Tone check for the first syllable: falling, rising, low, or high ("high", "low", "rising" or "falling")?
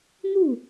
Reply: falling